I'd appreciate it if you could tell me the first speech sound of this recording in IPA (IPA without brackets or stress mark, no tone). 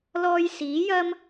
l